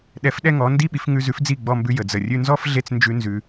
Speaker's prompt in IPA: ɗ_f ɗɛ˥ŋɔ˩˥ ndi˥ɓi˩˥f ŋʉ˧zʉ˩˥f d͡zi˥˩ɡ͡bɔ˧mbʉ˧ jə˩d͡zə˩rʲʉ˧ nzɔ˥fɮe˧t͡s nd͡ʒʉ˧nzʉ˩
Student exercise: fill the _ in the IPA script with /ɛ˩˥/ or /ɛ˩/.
ɛ˩˥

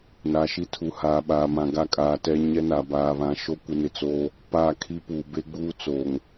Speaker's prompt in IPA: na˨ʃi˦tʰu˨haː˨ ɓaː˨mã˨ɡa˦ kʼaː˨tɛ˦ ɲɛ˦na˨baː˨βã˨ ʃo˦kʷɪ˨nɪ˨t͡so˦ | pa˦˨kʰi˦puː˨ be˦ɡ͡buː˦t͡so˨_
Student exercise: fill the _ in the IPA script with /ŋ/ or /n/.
ŋ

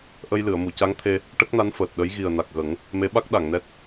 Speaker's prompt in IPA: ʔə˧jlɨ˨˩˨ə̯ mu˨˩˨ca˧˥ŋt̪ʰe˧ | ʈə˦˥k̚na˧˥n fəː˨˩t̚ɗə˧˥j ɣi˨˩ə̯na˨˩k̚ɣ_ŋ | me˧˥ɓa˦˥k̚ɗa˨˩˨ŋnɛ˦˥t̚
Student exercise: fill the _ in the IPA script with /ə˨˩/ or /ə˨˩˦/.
ə˨˩˦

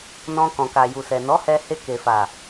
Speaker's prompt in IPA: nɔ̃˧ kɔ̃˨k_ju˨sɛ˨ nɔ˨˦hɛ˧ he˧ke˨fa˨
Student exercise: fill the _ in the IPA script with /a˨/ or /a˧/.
a˨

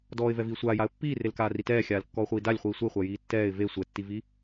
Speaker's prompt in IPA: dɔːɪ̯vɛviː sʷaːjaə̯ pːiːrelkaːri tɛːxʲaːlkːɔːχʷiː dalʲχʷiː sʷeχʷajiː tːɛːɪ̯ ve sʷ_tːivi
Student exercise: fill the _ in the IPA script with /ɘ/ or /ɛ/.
ɛ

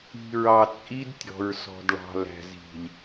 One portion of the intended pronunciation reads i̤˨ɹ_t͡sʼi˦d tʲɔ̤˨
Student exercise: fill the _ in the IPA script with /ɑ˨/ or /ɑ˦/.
ɑ˨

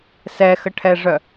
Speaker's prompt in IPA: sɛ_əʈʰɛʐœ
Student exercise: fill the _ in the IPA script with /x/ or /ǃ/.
x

